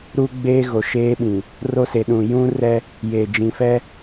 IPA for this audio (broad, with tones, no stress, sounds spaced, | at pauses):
ɾ u˦ ɡ͡b eː˦ ɣ o˨ ʃ eː˦ ɓ ĩ˨ | r o˦ s e˨ ɗ ũ˨ j ũ˦ r ɛ˦ | j e˨ d͡ʒ ĩ˨ f ɛ˦